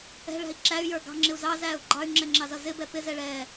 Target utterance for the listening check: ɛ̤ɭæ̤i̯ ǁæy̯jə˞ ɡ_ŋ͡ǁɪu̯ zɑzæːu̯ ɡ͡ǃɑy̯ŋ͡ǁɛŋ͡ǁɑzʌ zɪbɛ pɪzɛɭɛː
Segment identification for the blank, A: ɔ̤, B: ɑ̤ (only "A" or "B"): B